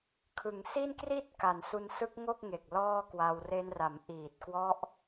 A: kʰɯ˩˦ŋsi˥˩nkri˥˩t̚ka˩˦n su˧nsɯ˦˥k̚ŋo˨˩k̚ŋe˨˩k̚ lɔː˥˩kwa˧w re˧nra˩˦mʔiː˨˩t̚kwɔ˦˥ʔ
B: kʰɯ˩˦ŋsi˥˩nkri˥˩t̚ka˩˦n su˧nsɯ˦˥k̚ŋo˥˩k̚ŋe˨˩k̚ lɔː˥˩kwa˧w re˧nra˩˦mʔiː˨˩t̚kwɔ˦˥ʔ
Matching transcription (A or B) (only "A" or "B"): B